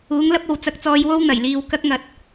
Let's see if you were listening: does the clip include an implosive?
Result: no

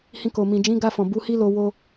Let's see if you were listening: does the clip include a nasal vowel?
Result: yes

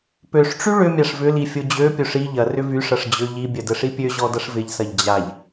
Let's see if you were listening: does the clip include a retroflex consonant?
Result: yes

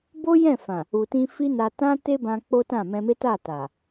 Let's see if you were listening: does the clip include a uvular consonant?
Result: no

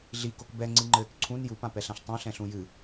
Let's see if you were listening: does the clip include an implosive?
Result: no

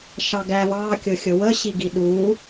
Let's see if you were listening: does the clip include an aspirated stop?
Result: no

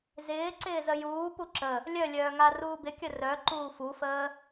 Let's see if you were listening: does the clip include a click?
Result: yes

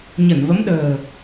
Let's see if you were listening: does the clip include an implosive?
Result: yes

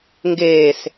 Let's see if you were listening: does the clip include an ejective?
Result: no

